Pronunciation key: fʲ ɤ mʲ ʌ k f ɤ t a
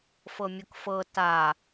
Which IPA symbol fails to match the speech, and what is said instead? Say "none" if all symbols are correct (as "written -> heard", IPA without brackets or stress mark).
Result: fʲ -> f